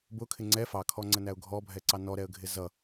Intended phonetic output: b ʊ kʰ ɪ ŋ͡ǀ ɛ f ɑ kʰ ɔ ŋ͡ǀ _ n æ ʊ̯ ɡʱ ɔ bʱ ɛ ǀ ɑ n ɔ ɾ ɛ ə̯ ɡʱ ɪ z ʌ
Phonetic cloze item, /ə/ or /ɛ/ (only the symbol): ə